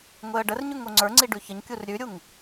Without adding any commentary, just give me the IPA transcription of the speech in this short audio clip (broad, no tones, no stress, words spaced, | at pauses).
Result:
ŋʷeə̯ɖərɲʉŋ oŋ͡ǀə˞ŋ͡ǀi ɖʉçəɲkʲur ɾʲʉɾʲuŋ